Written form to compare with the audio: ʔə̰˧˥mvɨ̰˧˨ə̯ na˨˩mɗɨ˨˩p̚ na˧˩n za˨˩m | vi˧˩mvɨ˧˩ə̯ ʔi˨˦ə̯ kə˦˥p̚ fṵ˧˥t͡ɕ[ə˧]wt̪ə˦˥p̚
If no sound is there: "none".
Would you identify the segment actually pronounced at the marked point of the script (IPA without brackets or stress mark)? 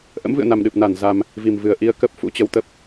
ə˧